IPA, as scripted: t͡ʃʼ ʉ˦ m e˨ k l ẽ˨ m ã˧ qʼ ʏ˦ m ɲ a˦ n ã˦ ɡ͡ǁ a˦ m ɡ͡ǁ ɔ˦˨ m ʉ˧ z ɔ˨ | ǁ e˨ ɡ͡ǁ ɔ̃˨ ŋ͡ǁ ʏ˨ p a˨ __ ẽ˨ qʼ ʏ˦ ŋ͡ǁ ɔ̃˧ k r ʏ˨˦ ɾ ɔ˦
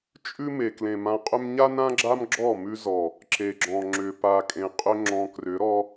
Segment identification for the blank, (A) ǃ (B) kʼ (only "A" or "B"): B